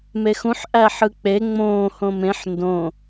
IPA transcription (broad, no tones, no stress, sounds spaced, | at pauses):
m e x ũ ħ ʔ æ ħ ɯ k͡p e ŋ͡m õː h õ m ẽ ħ n d õ